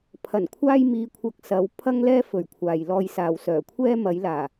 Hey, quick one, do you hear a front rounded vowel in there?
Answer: yes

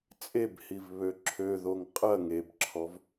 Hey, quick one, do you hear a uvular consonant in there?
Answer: yes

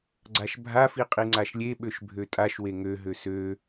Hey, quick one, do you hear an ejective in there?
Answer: yes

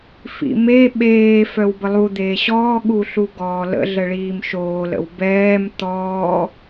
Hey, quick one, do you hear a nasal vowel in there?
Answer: no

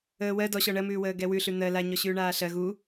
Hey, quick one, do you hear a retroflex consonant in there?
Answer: yes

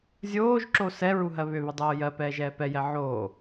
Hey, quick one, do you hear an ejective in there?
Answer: no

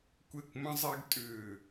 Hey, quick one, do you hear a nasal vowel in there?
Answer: yes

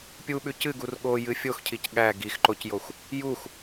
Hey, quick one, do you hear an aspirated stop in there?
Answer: yes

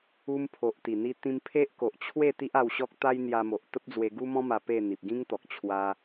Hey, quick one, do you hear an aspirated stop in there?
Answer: yes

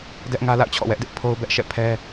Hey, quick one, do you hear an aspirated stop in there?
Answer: yes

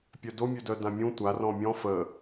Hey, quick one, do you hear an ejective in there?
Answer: no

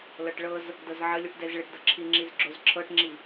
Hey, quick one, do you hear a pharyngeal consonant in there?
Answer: yes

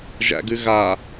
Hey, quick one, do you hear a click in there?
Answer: no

